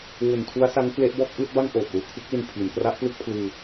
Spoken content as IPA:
w u˨˩ n tʰ u˦˥ a̯ s a˦˥ ŋ k l e˦˥ ʔ b ɔː˥˩ k̚ ʔ ɯː˥˩ t̚ b a˥˩ ŋ ʔ oː˨˩ p̚ l uː˩˦ kʰ ɯ˦˥ k̚ l i˧ n pʰ i˩˦ n k r a˦˥ ʔ p l ɯ˥˩ k̚ pʰ l ɯː˧

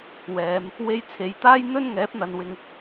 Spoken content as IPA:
w ɛː˨˧ m | w e˧ j t͡sʰ e˨˧ j t̪ aː˥ j n̪ ɵ˥ n ŋ ɛː˨˥ p̚ n̪ ɐ˨˧ n w ɪ˧ ŋ

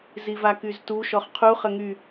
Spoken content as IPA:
z i v a k y z t u ʃ ɔ χ qʰ u χ ə ŋ y

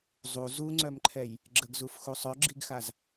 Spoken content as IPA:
zˤ u z u ŋ͡ǀ œ m ǃʰ ɛ j | ɡ͡ǁ ə ɡ z u f x u sˤ œ ɡ͡ǁ i ɡ x a z

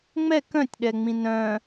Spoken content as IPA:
ŋ͡m ɛ k œ̃ tʲ ɗ ɛ ŋ͡m ĩ n œ̃

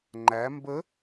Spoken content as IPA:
ŋ͡ǃ æ m b ə

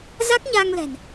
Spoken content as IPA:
z a˦˥ k̚ ɲ aː˧ ŋ l ɛ̤˨˩ n

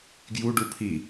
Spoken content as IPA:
ɡ j u ɖ u pʰ i

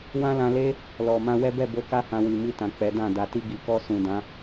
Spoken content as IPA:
w ã˦ l ã˧ l e˦ | l ɔ˨ m ã˧ w ɛ˦ b ɛ˦˨ b o˧ k a˦ h ã˧ w i˨ m i˧ t ã˨ k͡p ɛ˨˦ d ã˦˨ d a˨ t i˧ ɡ i˨ k ɔ˧ s ũ˨ d ã˨˦

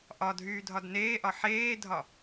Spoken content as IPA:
ʔ ɒ dʱ yː dʱ ɒ d n eː ʔ ɒ ħ eː dʱ ɒ

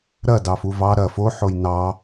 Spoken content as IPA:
ɾ ɐ d ɑ f u v ɑ ɾ ɐ f o ħ o j n ɑ

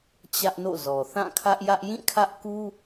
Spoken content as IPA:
t͡ɕ ä˦ ʔ n o̰˦˨ z ɔ˨ θ ã˦˨ kʰ ä˦ ʔ j ä˦ ʔ j ĩ˦˨ kʰ ä˦ ʔ k u˦

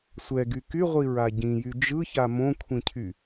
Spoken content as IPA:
sʷ ɛ ɡ y k y ʁʷ i ɹ a ɟ ĩ j y d͡ʒ ɯ ç a m õ kʷʰ ĩ cʰ y

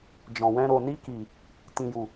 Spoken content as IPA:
d͡ʒ ɔ̃˨ w ɛ̃˧ ɾ o˨ n i˧ k i˨ | t ĩ˨ j u˨

